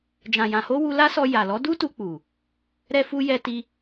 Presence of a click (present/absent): absent